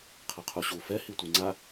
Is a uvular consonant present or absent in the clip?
present